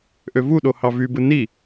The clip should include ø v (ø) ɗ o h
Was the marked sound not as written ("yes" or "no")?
yes